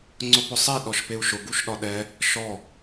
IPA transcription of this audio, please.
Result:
ŋ͡ǀ ʊ p ʊ sˤ e ɗ ɔ ʃ p e u̯ ʃ ʊ ɡ u ʃ ɗ ɒ ɗ ɛ | ʃ ɔ

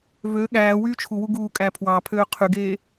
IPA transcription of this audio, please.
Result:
v ø ɠ æː w yː t͡ʃʰ u w u ɡ uː kʼ æ pʰ w ɑ pʰ øː qʰ y ɡ eː

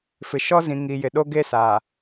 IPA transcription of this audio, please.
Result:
f ɪ˨ ʃ ɔ˦ z ĩ˨ ŋ i˨ j ɪ˨ ɗ o˦ ɡ e˦ s a˨

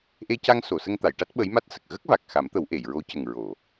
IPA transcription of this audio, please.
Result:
ʔ e˧ c a˧ ŋ s o˨˩˨ s ə˧ ŋ t̪ a˨˩˨ j ʈ a˦˥ t̚ ɓ ə˧˥ j m a˦˥ t̚ s ə˨˩ k̚ ɣ ə˦˥ k̚ v a˨˩ k̚ x a˨˩˦ m t̪ ə˨˩˦ w ʔ e˨˩˨ j ɹ o˧˥ c ə˨˩ ŋ ɹ o˨˩˨

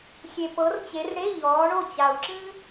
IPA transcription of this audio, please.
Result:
xʲ e˨ p ɤ˨˦ r t͡ɕ e˨˦ r ɽ e˧˥˧ ʎ ɔː˨˦ ɳ o˥˨ t͡ɕ a˨ u̯ ǁ ĩ˥

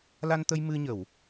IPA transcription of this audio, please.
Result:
l a˧ n t̪ ə˧ j m ɨ˧ ɲ ə˨˩˨ w

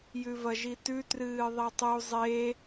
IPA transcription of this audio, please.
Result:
j ʉ v ɐ ʒ i t ʉ t r ɨː ðˤ e tˤ u zˤ e

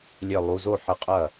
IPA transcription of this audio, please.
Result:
lʲ e˧˩ lˠ u˩˧˩ z o˥˩ ħ ɘ˧˩ qʼ ɐ˥˩

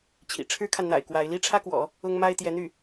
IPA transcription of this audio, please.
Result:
t͡ɕʰ ḭ˨˩ ʈ͡ʂʰ ɻ̩˥ kʰ a˨ n n̪ a̰˨˩ ɪ̯ k w a˧˥ ɪ̯ l i˥ ʈ͡ʂʰ ä˥ k w ɔ̰˨˩˦ | ʊ˥ ŋ m a˥ ɪ̯ t̪ j ɛ˧˥ n̪ y˥˩

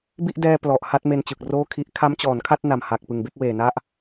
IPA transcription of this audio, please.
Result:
b i˥˩ ʔ d ɛː˧ p l ɔ˨˩ ʔ h a˥˩ t̚ m e˧ n t͡ɕ ɯ˨˩ k̚ r oː˥˩ kʰ i˦˥ ʔ kʰ a˦˥ m t͡ɕ ɔː˩˦ n kʰ a˥˩ t̚ n a˨˩ m h a˨˩ k̚ p ɯ˨˩ ŋ b e˥˩ k̚ w eː˨˩ n a˥˩ ʔ

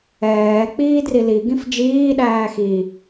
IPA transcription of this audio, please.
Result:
ɛː k͡p iː d r i l i ɡ ĩ f d͡ʒ iː ɗ æː x i

